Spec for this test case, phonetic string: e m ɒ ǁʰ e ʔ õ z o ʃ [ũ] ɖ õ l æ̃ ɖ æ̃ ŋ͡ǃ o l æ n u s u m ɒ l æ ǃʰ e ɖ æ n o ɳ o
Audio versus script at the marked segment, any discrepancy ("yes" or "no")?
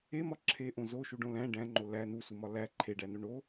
yes